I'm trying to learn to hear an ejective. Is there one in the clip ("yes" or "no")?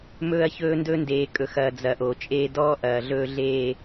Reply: yes